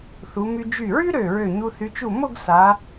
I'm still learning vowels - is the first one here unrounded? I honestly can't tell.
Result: no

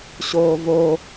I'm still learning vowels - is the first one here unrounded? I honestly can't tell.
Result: no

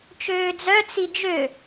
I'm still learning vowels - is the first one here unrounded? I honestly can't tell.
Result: no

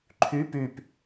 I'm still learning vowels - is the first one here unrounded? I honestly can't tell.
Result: no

